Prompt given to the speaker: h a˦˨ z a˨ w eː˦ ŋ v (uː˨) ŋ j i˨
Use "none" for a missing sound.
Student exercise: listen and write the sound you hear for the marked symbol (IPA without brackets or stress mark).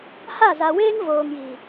oː˨